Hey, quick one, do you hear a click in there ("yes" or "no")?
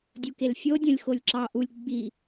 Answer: yes